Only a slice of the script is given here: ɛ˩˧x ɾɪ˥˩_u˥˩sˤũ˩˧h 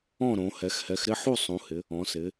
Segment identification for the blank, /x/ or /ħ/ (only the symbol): ħ